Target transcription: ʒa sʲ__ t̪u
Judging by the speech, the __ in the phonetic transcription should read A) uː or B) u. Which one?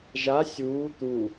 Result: A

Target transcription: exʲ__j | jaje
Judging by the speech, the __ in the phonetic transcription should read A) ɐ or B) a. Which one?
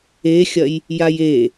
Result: A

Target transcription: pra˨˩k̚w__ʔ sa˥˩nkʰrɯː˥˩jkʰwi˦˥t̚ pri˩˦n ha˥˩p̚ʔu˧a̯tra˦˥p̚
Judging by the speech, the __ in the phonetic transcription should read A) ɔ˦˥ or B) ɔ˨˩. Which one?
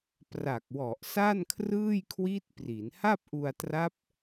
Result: B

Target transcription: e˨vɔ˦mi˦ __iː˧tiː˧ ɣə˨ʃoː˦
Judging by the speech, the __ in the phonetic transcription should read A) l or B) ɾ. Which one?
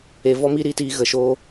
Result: B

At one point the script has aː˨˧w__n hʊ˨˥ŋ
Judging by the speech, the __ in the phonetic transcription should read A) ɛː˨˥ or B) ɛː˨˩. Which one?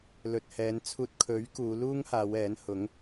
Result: A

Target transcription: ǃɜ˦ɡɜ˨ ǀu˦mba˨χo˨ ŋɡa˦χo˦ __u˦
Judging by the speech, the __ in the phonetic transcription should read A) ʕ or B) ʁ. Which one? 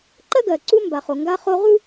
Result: B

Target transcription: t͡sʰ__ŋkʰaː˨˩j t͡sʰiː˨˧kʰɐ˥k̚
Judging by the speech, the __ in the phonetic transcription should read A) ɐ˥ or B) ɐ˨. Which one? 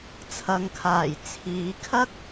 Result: B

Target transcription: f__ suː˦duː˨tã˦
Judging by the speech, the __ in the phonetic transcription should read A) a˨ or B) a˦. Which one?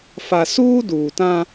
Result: A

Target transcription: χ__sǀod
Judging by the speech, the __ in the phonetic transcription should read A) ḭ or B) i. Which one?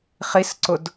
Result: B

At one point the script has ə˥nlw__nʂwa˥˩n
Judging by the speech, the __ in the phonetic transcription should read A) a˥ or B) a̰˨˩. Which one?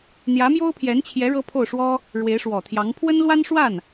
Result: A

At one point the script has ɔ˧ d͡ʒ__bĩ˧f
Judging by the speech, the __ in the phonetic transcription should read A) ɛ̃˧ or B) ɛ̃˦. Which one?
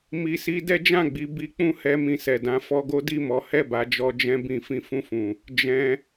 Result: B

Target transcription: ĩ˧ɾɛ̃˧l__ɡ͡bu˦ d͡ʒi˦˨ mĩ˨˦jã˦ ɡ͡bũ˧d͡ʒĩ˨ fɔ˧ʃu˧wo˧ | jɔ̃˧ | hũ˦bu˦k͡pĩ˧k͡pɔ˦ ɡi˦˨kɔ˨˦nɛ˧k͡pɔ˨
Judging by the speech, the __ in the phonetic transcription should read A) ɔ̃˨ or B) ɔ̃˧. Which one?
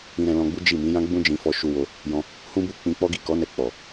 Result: B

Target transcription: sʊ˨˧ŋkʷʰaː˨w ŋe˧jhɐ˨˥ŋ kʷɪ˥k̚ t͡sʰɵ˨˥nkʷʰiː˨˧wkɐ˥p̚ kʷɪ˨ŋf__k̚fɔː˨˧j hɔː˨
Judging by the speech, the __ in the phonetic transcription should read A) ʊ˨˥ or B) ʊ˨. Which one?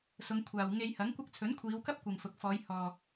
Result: B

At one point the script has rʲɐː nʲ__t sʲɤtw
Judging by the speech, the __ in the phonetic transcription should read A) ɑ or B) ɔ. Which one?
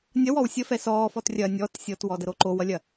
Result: B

